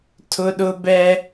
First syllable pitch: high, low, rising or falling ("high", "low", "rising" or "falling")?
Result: high